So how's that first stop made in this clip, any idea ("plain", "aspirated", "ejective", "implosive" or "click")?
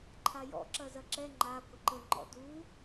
click